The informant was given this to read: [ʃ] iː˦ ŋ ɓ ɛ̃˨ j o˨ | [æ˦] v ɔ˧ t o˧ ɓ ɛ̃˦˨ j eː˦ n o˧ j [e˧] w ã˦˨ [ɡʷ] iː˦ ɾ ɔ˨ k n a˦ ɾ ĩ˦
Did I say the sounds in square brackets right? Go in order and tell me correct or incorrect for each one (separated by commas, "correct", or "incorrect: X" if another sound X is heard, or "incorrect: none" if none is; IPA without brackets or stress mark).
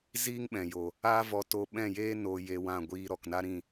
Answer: incorrect: z, incorrect: a˦, correct, correct